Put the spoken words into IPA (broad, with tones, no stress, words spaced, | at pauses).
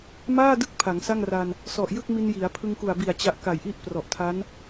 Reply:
maː˥˩dɯ˦˥k̚ pʰa˩˦ŋsa˥˩ŋra˧n | sɔ˨˩ʔjɯ˥˩k̚mi˧n ji˩˦a̯ pʰɯ˧ŋku˨˩a̯bi˨˩a̯ t͡ɕa˥˩ʔ ka˨˩jʔi˥˩ʔprɔ˨˩ʔ tʰa˦˥n